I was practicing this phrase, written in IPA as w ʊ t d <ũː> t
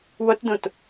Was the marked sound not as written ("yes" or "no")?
yes